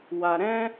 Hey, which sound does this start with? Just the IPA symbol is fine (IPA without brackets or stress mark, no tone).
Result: w